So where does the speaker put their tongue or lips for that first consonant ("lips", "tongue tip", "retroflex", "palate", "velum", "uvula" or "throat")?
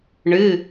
retroflex